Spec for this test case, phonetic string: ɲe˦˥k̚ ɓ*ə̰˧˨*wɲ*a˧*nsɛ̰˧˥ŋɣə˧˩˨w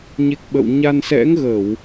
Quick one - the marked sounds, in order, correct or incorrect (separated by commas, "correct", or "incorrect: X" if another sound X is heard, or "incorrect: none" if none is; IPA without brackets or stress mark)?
correct, correct